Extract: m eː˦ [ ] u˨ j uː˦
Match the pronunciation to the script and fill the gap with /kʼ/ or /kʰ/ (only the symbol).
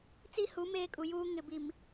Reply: kʼ